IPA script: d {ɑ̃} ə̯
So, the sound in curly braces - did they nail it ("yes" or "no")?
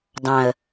yes